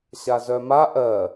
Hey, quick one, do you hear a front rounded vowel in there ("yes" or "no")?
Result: yes